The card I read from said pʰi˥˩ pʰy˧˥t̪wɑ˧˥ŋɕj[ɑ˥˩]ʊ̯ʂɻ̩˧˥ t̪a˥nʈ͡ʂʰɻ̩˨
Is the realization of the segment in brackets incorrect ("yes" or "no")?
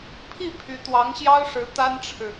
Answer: yes